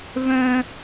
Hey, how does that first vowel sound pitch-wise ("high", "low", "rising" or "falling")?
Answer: high